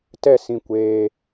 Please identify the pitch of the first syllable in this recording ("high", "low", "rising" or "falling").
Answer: falling